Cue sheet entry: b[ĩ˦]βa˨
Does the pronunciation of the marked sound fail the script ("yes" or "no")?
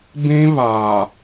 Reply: no